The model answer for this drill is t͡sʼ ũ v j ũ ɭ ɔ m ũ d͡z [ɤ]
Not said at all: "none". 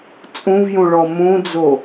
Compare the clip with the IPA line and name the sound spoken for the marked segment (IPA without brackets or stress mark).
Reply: o